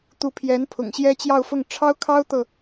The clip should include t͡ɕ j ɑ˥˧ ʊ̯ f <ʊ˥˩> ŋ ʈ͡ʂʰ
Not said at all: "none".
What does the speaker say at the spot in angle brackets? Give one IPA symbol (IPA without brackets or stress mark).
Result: ʊ˥˩